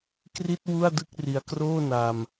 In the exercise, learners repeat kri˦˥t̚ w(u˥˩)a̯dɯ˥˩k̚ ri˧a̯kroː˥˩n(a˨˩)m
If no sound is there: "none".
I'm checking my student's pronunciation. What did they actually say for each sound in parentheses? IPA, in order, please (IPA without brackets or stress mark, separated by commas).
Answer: u˥˩, a˧